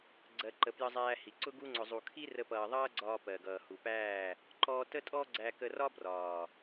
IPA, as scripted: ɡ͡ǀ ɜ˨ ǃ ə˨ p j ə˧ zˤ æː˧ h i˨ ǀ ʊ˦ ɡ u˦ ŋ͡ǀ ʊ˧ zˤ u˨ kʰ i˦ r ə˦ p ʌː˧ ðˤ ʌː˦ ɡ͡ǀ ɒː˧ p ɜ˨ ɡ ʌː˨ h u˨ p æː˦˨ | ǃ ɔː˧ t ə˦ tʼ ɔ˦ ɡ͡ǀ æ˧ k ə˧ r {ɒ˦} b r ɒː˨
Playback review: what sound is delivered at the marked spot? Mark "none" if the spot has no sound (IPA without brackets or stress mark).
ɒ˦